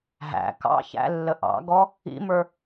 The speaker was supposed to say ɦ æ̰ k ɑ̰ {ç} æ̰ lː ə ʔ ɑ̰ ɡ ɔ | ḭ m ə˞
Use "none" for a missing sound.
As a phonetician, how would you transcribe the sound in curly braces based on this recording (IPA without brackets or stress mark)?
ç